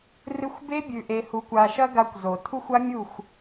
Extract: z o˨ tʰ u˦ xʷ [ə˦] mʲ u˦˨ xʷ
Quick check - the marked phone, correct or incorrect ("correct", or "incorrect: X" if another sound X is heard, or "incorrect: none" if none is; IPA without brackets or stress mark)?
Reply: incorrect: a˦